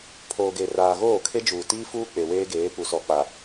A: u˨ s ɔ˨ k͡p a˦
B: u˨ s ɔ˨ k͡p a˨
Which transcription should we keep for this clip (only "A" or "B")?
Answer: B